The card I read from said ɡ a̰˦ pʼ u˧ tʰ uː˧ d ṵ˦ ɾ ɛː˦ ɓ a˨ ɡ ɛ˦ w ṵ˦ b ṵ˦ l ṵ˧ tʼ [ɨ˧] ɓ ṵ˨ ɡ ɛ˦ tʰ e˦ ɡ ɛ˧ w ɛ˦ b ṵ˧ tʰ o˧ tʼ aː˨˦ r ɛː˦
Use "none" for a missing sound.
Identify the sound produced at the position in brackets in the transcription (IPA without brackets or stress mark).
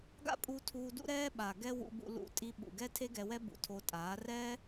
i˧